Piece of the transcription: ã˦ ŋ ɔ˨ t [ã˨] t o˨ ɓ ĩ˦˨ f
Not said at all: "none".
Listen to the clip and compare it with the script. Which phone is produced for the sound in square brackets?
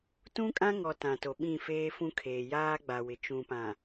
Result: ã˨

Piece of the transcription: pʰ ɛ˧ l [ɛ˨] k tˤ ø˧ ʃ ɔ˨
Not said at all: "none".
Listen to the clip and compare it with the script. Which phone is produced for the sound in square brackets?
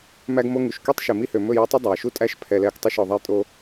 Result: ɛ˦˨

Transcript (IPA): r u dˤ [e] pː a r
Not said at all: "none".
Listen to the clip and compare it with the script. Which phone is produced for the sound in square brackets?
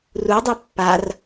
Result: e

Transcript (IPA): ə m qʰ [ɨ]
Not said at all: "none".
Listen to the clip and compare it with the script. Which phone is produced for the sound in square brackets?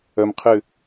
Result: ɨ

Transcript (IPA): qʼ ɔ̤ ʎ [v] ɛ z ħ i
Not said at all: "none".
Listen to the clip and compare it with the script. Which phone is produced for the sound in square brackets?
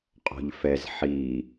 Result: f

